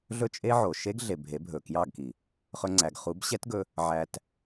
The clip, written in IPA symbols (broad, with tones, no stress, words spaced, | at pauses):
ɮɵ˦t͡ʃʼe˦ʕo˨ ʃe˦ɡɮe˨ bʱe˨˦ bʱɵ˨kjɑ˦˨ɡki˨ | χɵ˦ŋ͡ǀæ˧ɡ χu˨˦bɕɛ˦tɡɵ˧ | ʕæ˧t